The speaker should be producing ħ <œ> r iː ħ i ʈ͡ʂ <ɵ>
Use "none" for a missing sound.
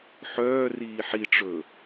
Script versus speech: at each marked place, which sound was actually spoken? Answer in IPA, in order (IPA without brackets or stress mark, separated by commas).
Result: œː, ɵ